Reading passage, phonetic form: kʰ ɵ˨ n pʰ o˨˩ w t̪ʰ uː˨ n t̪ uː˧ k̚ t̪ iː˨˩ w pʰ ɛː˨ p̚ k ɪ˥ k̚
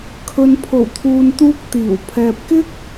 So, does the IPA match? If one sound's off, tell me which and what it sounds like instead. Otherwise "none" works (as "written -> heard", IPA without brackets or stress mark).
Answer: none